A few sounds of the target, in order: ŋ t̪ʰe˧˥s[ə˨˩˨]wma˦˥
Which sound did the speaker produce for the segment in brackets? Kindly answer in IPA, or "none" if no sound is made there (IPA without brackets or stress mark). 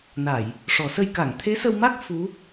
ə˧